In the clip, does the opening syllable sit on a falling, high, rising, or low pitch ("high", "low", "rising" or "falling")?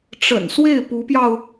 low